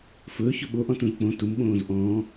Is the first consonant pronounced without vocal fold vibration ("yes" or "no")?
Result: yes